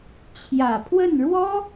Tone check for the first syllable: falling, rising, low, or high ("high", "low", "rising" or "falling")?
low